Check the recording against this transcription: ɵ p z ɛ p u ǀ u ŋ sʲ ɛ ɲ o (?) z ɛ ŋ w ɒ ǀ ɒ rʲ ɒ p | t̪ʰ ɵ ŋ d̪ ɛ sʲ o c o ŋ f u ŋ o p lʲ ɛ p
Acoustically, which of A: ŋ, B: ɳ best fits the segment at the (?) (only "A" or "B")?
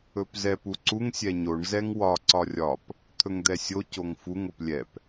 B